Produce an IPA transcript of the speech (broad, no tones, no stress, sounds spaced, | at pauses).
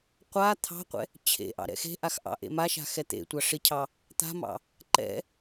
qʷ a t̪ʰ ɑ̤ qʷ ɛ̰ | t͡ɕʰ ḛ ʔ ɑ̰ ɾ ɛ̰ x e̤ ʔ a x ʔ ɑ̰ ʔ ḛ m a ʃ a̤ x ɛ t̪ ḛ tʷ ɑ ʂ ɪ cʰ ɑ | t̪ a̤ m ɑ̰ | ǃ ɛ̰